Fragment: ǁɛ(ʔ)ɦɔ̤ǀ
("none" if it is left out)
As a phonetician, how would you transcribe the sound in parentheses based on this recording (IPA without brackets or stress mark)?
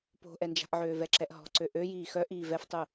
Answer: ʔ